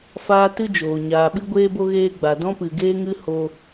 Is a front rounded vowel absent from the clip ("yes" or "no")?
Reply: yes